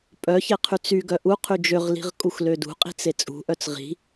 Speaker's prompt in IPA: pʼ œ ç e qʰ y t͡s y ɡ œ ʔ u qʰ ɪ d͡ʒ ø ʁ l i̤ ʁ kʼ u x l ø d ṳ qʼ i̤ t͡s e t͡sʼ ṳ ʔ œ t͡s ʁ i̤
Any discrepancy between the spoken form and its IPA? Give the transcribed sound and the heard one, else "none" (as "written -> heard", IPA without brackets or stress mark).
ɪ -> y